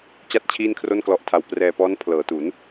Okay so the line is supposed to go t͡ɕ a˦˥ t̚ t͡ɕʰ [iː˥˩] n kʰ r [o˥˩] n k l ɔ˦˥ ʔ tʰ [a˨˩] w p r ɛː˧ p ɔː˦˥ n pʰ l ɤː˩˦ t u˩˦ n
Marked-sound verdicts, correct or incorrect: correct, correct, incorrect: a˧

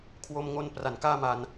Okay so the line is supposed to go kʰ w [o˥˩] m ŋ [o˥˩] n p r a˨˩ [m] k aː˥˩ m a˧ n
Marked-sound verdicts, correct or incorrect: incorrect: o˧, incorrect: o˧, incorrect: n

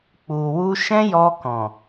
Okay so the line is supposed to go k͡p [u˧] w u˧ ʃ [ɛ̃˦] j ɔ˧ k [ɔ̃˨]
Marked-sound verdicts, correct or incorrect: incorrect: u˨, correct, correct

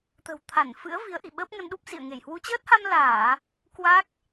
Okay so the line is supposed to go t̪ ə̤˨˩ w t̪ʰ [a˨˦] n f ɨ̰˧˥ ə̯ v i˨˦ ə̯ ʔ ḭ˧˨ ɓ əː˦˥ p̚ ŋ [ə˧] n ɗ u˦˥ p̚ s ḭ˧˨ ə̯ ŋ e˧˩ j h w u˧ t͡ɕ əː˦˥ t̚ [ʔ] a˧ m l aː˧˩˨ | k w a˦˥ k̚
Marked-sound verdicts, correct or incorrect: incorrect: a˧˩, correct, incorrect: h

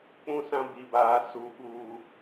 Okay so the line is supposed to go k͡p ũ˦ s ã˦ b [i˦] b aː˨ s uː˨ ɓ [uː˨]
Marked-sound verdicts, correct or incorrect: incorrect: i˨, correct

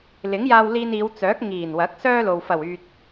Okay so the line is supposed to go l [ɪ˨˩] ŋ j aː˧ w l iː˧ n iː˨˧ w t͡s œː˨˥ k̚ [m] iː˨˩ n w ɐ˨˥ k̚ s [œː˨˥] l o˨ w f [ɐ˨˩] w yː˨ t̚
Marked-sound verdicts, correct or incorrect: incorrect: ɪ˨˥, incorrect: ŋ, incorrect: œː˥, correct

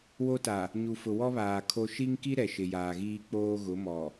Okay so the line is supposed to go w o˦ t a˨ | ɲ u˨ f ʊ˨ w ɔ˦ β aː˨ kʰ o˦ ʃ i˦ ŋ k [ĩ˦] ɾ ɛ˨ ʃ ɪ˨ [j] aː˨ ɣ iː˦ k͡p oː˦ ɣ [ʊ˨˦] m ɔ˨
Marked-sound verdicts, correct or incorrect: incorrect: i˦, correct, correct

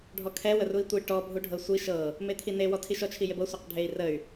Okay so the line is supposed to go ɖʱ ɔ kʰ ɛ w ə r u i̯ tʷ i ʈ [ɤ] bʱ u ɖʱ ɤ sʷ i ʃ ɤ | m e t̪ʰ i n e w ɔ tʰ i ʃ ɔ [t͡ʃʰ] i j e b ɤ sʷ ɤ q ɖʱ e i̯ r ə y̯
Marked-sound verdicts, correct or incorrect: incorrect: ɔ, correct

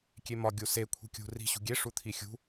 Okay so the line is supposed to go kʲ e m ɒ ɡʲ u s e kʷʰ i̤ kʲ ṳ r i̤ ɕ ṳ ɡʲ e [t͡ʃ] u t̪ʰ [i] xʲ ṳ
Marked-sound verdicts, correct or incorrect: incorrect: ʂ, correct

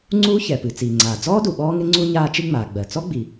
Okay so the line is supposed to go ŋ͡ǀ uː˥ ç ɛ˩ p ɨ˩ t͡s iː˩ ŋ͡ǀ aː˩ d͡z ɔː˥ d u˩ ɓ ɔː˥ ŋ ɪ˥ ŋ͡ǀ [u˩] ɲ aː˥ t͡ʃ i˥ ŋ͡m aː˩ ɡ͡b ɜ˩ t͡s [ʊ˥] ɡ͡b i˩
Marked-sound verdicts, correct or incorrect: incorrect: u˥, incorrect: ɔ˥

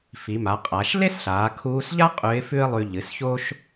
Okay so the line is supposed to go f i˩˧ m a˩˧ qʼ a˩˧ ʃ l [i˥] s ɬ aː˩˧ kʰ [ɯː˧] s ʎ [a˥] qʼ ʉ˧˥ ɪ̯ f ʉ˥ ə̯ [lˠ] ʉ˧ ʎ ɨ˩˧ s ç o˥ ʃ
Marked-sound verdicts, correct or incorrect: incorrect: e˥, incorrect: uː˧, correct, correct

